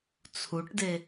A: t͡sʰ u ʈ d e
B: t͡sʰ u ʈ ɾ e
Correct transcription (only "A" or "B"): A